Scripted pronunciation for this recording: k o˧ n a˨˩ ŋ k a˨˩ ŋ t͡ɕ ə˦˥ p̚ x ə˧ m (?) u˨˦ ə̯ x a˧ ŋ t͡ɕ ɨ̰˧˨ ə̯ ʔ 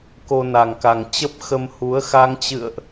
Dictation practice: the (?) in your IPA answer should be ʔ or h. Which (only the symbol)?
h